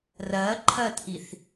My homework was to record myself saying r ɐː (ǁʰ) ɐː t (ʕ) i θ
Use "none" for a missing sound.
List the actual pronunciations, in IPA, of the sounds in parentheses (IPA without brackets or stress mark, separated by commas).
ǃʰ, ʔ